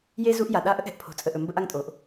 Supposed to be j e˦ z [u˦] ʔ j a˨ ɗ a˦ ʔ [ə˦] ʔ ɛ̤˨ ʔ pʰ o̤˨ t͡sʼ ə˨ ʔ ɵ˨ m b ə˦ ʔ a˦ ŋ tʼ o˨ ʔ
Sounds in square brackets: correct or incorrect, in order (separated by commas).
correct, correct